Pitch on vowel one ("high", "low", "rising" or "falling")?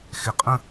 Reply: rising